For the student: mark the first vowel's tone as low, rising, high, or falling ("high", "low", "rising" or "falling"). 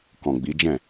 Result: low